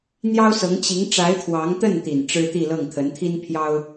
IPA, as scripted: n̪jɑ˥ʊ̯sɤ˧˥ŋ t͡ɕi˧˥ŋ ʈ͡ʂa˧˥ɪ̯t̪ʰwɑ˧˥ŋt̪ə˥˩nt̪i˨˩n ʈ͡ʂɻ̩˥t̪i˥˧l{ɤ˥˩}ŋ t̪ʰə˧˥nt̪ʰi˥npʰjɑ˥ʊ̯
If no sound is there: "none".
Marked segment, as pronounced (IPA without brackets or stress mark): ɤ˥˩